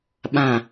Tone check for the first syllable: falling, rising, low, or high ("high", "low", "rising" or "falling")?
low